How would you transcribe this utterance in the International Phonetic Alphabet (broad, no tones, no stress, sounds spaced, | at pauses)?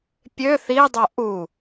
pʲ ø θ i dˤ o ʔ u